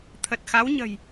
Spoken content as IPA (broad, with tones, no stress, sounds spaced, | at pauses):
t̪ʰ ə˨˩ t̚ x a˨˦ w ɲ ə̤˨˩ j